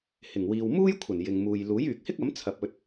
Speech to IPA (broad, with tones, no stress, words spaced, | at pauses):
hɪ˨˩ŋwiː˨wmuː˥jkʷʰɐ˨˩n jɪ˨ŋmuː˨j luː˨˥jyː˨k̚hɪ˥k̚ɐ˨˥m t͡sʰɐ˨p̚ɵ˧t̚